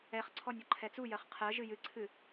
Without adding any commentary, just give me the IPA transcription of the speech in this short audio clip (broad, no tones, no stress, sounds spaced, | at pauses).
ɛ χ ǀʰ ɔ nʲ ɔ ǃʰ ɛ t͡s u j ɜ χ qʰ ɜ ʒ ɨ j ɨ ǀʰ ɨ